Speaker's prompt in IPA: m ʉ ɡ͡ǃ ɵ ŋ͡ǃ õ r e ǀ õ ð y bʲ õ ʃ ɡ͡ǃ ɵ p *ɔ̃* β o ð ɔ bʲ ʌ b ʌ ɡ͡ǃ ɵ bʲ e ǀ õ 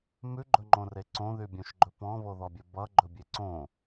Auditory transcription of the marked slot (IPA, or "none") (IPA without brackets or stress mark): ɔ̃